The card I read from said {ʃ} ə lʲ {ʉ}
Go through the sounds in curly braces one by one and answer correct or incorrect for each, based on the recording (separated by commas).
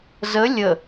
incorrect, incorrect